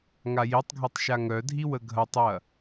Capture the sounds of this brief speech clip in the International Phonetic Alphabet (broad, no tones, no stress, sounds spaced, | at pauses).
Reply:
ŋ a j i tˤ ɡʱ ɛ tˤ ʃ a ŋ œ dʱ i w ə ɡʱ ɐ tˤ j ɐ